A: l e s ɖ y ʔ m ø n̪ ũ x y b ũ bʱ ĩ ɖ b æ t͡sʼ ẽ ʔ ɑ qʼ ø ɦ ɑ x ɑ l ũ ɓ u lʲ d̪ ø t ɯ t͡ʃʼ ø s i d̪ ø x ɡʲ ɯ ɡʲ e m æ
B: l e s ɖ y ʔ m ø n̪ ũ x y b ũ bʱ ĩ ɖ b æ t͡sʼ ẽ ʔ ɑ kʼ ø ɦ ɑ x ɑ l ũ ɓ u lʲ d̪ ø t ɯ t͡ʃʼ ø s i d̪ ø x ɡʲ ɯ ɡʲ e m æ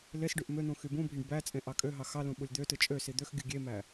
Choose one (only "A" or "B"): B